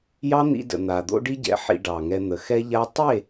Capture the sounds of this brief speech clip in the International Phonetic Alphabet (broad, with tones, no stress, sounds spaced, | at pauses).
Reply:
j ɑ˦ n̪ ḭ˧ d ə̰˨ n̪ a˨ d̪ o̰˦ ɖ i˦ ɟ ɛ̰˨˦ ħ ḭ˧ ɖ ɑ˨ ŋ ɛ˧ n̪ ə˨ x ɛ˦ ʎ a˦ tˤ e˦˨